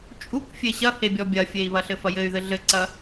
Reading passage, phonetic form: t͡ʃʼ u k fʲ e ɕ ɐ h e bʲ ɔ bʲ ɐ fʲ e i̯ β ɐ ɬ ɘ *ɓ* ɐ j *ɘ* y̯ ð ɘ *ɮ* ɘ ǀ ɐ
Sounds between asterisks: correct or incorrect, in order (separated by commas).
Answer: incorrect, correct, correct